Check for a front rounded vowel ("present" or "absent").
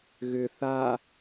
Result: present